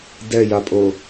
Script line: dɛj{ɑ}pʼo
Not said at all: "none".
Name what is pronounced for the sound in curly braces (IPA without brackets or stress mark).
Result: a